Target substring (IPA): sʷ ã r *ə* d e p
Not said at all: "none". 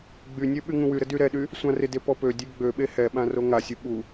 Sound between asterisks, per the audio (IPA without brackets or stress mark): ɪ